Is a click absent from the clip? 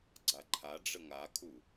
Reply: no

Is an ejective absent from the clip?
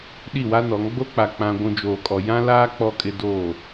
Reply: no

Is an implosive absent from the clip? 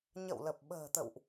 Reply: no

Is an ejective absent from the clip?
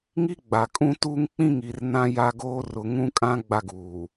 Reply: no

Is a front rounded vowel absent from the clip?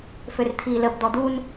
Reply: no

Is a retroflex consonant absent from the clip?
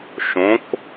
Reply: yes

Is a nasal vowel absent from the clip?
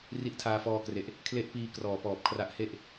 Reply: yes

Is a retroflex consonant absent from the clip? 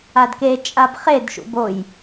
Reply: yes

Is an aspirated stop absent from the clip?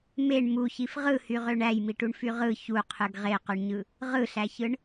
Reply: no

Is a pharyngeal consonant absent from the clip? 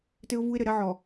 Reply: no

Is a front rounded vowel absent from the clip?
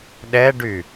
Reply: no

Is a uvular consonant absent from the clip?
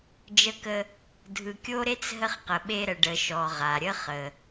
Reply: no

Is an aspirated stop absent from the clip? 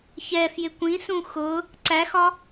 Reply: yes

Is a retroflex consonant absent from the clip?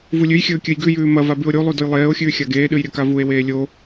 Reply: yes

